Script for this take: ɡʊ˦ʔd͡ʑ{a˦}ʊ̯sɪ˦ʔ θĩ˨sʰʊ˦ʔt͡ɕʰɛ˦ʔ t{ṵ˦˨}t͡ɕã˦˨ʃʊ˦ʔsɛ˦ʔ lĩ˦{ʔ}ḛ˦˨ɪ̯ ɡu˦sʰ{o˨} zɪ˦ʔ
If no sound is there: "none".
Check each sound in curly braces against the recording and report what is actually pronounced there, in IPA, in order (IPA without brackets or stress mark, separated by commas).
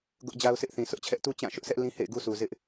a˦, u˦, h, u˨